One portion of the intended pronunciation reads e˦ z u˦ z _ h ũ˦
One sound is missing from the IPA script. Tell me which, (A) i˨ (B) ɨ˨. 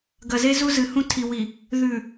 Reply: B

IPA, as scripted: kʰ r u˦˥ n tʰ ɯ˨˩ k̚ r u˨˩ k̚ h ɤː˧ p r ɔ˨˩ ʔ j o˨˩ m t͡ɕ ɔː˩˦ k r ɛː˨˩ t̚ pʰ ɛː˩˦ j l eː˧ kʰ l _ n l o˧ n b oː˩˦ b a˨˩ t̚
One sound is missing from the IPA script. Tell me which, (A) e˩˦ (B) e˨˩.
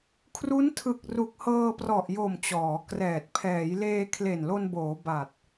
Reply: B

